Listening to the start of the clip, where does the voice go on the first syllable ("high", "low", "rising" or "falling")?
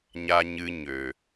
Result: high